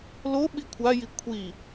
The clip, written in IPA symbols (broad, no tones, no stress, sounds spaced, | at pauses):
l o ɓ i kʷʰ a j i kʷʰ i